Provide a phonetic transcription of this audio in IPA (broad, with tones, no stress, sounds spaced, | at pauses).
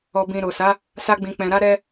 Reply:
ɔ˨ b ĩ˨ ɾ o˨ s a˨˦ | s a˧ ɡ͡b ĩ˨ k͡p ɛ̃˨ ɾ a˧ ɾ ɛ˦